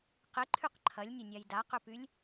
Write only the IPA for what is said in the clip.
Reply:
qɪǃʰyq ǃʰɐlʲnʲɐnʲaj daqʏpylʲ

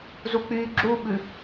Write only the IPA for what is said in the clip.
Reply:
zuk͡pyːɡ͡ǁuɓʉ

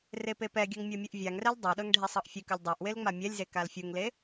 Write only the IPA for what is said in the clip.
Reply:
repepɛɡʲɤŋ mʲɤmʲɯʔvʲaŋrɛl dˤɤɗɤŋ ɖʱesˤɤʔfʲɨkɯlʲ dˤɤʔ welŋ͡mamʲɛlʲze kalfʲuŋle

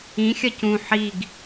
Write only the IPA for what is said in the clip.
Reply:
ĩ xʲɐcũ ħiɡ

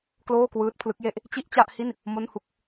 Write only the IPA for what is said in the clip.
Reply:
kloː˥˩kwɯː˦˥t̚pʰlɯ˦˥k̚je˥˩ʔ | t͡ɕi˥˩ʔt͡ɕa˥˩ʔhi˥˩n | mo˥˩nhu˥˩k̚

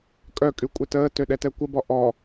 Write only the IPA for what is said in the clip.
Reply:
kʼœkʼy kʷʼɛtəːtø ɗɛtɛkʷəbɔ ʔɔ

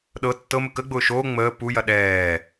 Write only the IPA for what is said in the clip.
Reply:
ɗɤ tːɤmə kəɡ͡bʊː ʃoː ŋ͡məː pujɐ ɗɛː

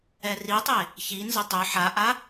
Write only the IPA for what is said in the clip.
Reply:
ɛritˤe | çinzə tˤʏ ħaʔa

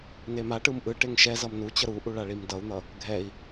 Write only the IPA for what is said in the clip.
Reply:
nemaʈɯm ʔɯ ʈeŋʃɛzʌm nu t͡ɕʌɾuʔu ɭaɭimdʌu̯n̪ʌ | ɡʱɛi̯

